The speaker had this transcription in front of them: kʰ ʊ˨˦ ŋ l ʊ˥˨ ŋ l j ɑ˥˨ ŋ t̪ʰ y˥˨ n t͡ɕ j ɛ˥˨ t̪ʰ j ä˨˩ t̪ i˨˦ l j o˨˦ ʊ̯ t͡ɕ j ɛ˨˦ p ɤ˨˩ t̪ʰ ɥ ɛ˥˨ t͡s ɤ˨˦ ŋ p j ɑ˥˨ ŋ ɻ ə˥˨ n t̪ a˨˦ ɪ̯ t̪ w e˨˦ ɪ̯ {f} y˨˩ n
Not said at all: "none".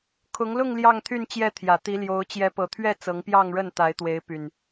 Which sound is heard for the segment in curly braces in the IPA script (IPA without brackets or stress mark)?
p